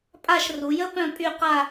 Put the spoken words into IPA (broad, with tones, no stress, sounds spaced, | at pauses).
pʼ a˦˨ ʃ r u˩˧ j ə˦˥ p œ̃˦˨ pʼ y˦˨ q a˦˨